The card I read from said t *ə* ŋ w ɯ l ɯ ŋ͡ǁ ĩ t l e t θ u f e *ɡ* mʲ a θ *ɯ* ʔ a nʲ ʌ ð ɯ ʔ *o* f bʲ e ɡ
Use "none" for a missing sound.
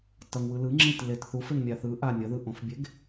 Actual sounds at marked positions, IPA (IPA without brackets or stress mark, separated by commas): ʌ, ŋ, ɯ, õ